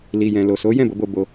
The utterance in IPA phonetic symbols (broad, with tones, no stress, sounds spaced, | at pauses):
l i˨ j ɛ̃˨ l o˨ s o˨˦ j ɛ̃˦˨ b o˨˦ b o˧ b o˧